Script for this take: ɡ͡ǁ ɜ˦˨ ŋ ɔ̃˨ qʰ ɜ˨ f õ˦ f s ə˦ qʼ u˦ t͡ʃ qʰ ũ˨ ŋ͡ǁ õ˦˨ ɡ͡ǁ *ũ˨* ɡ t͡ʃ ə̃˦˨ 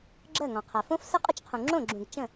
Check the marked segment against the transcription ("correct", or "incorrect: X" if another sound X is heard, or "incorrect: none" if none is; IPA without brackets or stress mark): correct